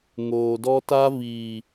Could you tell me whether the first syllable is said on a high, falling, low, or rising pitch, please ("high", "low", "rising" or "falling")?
low